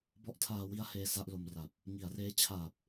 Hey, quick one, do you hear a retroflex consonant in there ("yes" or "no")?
no